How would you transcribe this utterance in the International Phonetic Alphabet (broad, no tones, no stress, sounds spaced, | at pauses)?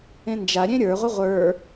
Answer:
ẽ n d͡ʒ a ɾʲ ẽ ɾʲ ə˞ ʁʷ e ʁʷ ə˞